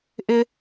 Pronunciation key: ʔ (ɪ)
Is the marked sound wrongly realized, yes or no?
no